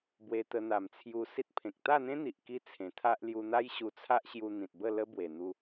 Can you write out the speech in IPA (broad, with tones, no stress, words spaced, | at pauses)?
bwe˧t̪ə˧n̪a˨˩mt͡sʰju˧ si˦t̚pʰẽ˨k̚ t̪a˥˧n̪ẽ˦n̪i˨ʔ ki˦t͡sʰẽ˨˩t̪ʰa˦ʔ lju˧n̪a˦j ɕu˧t͡sʰa˦ʔ ɕju˧ n̪ĩ˨t̚bə˥˧lə˦ bwe˨˩n̪u˧